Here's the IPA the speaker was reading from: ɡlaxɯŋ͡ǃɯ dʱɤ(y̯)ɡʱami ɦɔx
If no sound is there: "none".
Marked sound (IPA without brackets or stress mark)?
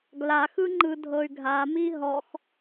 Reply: y̯